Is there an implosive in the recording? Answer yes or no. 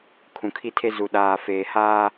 yes